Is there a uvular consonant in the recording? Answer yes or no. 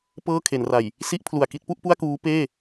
no